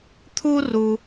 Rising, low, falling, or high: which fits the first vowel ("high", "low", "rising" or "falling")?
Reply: high